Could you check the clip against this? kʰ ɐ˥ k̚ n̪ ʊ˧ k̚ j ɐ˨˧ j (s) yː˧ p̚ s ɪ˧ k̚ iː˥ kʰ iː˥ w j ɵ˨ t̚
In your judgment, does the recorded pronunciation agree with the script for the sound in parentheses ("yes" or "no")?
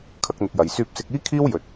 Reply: yes